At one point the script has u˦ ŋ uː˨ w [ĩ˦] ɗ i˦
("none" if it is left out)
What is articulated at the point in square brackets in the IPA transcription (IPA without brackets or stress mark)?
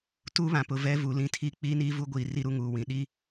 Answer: ĩ˨